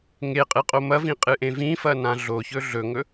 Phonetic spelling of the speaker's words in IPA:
ŋ e qʼ ɨ qʼ o m ɐ v ĩ qʼ ɨ ʔ ẽ v ĩ f ɐ n ã ɮ o ç ɵ ɮ ɵ ŋ ɵ

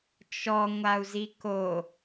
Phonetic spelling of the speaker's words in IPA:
t͡ʃ ɔ ŋʷ a u̯ z i k o

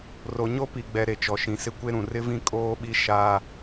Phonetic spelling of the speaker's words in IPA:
r o˨ ɲ o˦ p i˨ ɡ͡b ɛ˨ ɾ e˨ t͡ʃ ɔ˨ ʃ ĩ˨ s ɪ˦ kʷ e˦ ɾ ũ˨ r ɪ˦ v ĩ˦ kʼ oː˦ ɓ i˦ ʃ a˦

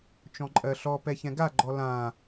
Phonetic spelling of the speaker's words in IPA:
t͡ʃ ɔ̃ ǃʼ ɜ ɬ ɔ p ɛ ç ɛ̃ ɡ a ɡ͡ǃ ɔ l ã

